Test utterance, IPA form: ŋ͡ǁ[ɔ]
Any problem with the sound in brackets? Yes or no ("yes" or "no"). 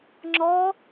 no